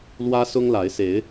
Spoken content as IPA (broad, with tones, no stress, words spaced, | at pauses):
lwä˦sʊ˦ŋla˨˦ɪ̯se˨˦ɪ̯